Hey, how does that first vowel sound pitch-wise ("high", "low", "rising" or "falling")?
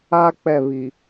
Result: high